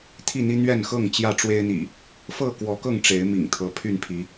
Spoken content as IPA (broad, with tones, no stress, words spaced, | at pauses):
t̪ʰi˥˨n̪i˦ n̪ɥɛ˥˨nxɤ˥˨ŋ t͡ɕjä˥˨ʈ͡ʂwe˦ɪ̯n̪ḭ˨˩ | fɤ˥˨kwɔ˨˦kɤ˥˨ŋ ʈ͡ʂe˨˦ɪ̯ mḭ˨˩ŋt̪ʰɤ˨˦ pʰy˥˨npʰi˨˦